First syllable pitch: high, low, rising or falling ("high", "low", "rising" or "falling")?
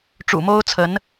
low